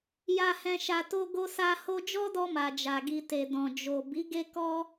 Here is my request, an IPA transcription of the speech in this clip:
ja˨hɛ̃˨ʃa˨ to˧ɡo˧sa˧ ho˧d͡ʒɔ˦dɔ˧ ma˨d͡ʒa˨ɡi˧te˨ dɔ̃˨d͡ʒo˨ bi˨˦ ɡe˧kɔ˧

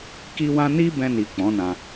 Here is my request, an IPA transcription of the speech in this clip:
ki˦wã˦ ni˦bɛ̃˧ni˨ k͡pɔ̃˨˦nã˧

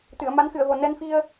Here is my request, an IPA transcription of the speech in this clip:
t̪ɨ˨˩˨ə̯ma˧˥nxɨ˨˩˨ə̯vo˨˩ nɛ˧nfi˧ə̯

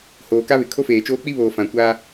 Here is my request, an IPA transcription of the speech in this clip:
hoː˨ka˦βɪ˨ kʰo˦feː˨t͡ʃoː˦ k͡pi˦βoː˨ fã˨ kʷaː˦

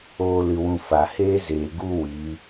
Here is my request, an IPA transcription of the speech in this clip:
oː˦lɨ˧wũ˧ fa˨heː˦zeː˨ ɡu˧ wi˨˦

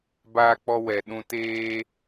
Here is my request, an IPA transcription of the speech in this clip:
baː˧k͡pɔ˧ wɛ˨ ɗũ˧teː˦

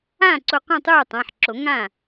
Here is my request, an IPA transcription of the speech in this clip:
ãː˥˩ǀo˧˩qõ˥˩ tˤuː˥˩tˤã˩˧˩ħǁo˨˩˦ ŋã˥˩

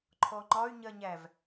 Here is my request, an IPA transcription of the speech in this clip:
ǃʰɔŋ͡ǃɒy̯ ɲɜɲæv

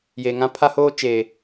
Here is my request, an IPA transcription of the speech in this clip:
jeː˨ŋã˦ pʰa˦hoː˦ t͡ʃeː˨

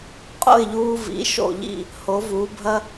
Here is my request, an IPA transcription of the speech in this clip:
qʼo̰˥˩ɪ̯ʎuː˧vḭ˩˥ ʃo̰˥˩ʎḭ˥˩ | ho˩˥vuː˩˥bʱɐ˥

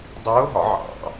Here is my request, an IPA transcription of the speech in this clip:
dˤʊː˧˥ɦɒ˨˩˦ ʕɑ̰˨˩˦

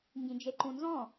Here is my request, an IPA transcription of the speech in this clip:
ŋɡĩd͡ʒeǃũnzɔ̃

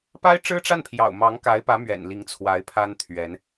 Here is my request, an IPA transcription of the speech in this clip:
pa˥ɪ̯ʈ͡ʂɻ̩˥ʈ͡ʂa˥˩n pʰjɑ̰˨˩ʊ̯mɑ˧˥ŋka˧˥ɪ̯pä˧˥ mɥɛ̰˨˩nli˧˥ŋ t͡sʰwa˧˥ɪ̯pʰa˥n t̪ʰɥɛ˧˥n

